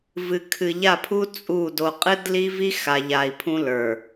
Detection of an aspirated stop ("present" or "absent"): present